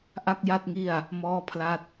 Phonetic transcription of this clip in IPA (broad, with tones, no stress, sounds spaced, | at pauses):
ʔ a˥˩ k̚ j a˥˩ t̚ ŋ i˥˩ a̯ | m ɔː˥˩ pʰ l a˥˩ t̚